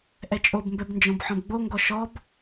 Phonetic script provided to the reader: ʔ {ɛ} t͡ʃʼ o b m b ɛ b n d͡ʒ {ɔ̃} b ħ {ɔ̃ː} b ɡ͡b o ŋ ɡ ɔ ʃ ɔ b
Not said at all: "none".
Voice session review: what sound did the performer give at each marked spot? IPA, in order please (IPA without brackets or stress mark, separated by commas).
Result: ɛ, ɔ̃, ɔ̃